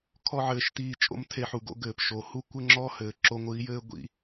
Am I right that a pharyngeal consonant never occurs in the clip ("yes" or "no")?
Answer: no